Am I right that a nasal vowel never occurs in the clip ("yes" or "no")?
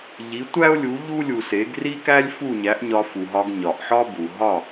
yes